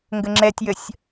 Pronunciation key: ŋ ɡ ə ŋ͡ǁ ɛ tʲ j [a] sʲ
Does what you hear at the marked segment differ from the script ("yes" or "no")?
yes